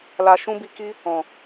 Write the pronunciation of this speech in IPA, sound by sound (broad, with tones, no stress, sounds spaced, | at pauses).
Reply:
l a˧ ʃ ũ˦ b i˧ k i˦ | ɔ̃˨